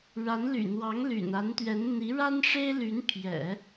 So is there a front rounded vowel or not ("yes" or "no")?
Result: yes